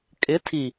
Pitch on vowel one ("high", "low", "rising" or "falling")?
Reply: rising